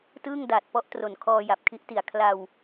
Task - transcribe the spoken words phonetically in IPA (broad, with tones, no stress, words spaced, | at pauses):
tɯː˥˩ŋdaː˨˩t̚pɔ˦˥ʔ tro˨˩n kʰɔː˧ja˨˩p̚kʰi˦˥ʔti˨˩a̯ kʰla˧w